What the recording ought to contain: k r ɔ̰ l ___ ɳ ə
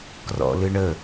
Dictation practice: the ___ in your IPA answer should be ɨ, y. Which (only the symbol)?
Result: ɨ